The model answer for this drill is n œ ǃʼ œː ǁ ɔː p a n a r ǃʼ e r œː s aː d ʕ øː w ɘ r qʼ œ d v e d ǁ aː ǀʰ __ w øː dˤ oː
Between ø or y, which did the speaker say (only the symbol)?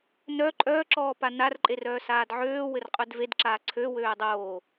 ø